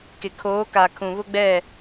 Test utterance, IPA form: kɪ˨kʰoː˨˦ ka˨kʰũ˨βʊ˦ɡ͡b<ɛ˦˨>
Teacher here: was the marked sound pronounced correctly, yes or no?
yes